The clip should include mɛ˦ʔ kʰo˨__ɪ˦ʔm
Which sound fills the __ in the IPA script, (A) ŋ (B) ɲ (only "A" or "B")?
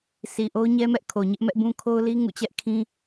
B